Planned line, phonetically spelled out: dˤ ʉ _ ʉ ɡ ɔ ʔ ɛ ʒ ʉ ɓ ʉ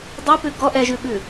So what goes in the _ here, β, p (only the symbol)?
p